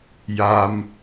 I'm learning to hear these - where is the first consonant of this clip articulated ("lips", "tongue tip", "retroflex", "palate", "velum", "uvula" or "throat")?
palate